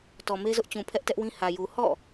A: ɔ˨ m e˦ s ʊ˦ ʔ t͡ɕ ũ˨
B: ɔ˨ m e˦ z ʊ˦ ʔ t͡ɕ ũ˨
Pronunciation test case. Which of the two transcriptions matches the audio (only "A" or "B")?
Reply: B